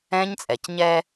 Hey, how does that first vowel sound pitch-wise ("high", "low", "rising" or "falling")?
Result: high